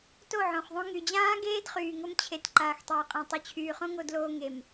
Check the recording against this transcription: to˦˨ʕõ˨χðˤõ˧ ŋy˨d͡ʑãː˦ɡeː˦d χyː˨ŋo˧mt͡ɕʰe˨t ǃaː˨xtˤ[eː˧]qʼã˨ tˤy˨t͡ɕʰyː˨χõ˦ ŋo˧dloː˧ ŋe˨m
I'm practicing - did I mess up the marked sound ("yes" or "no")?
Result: yes